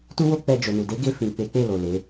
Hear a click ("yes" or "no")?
no